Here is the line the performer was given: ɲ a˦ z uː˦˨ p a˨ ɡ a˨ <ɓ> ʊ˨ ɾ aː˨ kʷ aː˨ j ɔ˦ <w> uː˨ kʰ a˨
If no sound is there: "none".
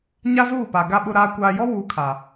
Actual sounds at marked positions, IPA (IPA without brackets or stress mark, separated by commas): ɓ, w